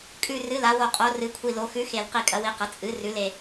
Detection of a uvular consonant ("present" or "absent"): present